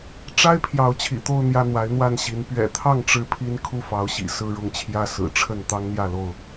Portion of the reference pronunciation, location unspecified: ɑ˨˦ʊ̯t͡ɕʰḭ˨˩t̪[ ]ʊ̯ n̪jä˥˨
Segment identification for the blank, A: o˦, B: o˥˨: B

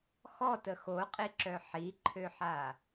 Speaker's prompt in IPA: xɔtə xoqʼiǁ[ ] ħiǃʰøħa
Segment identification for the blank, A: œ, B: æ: A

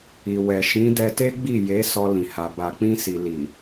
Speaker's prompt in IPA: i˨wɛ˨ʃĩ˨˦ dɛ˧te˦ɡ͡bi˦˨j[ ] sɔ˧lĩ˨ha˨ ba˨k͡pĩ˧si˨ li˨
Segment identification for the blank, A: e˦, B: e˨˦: B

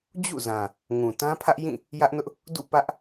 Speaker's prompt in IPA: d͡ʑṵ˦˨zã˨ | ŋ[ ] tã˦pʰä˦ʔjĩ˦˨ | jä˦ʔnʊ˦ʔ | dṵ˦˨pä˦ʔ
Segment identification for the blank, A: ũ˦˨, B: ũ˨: B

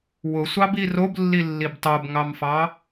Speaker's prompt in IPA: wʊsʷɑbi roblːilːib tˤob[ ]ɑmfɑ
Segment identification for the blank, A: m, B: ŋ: B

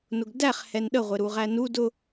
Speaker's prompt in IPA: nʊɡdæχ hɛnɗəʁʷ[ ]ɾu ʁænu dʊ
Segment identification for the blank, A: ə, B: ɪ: B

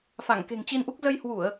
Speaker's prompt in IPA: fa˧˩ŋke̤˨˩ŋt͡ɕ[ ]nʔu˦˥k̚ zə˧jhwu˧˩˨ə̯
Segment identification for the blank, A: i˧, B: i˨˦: A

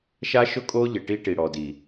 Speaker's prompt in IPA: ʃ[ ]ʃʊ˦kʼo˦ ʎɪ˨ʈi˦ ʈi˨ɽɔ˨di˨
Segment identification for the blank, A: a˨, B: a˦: B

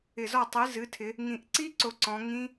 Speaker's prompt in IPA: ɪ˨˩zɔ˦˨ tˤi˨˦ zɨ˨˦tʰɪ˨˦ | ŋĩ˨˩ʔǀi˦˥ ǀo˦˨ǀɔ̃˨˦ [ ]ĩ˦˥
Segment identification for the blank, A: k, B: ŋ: B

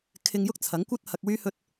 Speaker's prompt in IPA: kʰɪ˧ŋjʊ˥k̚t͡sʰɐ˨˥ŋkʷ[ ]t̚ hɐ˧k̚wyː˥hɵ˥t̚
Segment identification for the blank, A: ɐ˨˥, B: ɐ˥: B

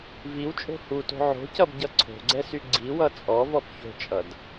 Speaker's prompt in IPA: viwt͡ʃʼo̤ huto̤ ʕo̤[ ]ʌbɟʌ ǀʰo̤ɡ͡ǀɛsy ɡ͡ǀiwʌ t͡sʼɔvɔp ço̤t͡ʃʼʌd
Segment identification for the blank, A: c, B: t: A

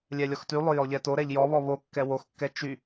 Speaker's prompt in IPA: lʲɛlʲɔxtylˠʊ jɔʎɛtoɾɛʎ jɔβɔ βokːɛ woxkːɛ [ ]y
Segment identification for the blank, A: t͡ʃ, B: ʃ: A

